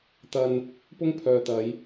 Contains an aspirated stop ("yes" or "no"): yes